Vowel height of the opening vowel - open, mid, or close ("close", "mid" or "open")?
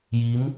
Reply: close